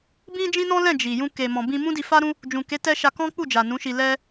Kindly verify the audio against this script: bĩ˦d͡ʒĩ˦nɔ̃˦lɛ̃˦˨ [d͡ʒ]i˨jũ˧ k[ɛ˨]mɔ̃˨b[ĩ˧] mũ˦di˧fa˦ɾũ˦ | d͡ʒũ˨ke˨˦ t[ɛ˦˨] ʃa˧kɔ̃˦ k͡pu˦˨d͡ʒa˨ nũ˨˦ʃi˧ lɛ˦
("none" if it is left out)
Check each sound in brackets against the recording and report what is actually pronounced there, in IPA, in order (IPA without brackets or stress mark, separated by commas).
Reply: d͡ʒ, e˨, ĩ˧, ɛ˦